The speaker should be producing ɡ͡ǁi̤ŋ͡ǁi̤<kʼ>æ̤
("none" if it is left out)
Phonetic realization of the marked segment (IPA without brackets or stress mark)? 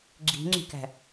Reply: k